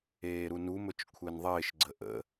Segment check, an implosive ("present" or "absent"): absent